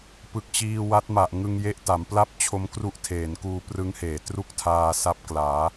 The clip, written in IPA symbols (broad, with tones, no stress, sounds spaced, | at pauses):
p ɯ˨˩ k̚ t͡ɕ iː˧ w a˦˥ t̚ m a˨˩ ʔ ŋ ɯ˧ ŋ j e˦˥ ʔ t a˩˦ m p l a˥˩ p̚ t͡ɕʰ o˦˥ m k r u˦˥ ʔ tʰ eː˩˦ n k uː˧ p r ɯ˦˥ ŋ h eː˩˦ t r u˥˩ k̚ tʰ aː˧ s a˦˥ p̚ k l aː˩˦